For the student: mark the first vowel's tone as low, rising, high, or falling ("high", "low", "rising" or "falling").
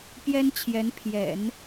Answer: high